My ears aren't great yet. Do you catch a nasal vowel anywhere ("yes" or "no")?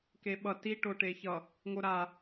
no